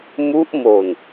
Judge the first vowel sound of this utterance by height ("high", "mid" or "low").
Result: high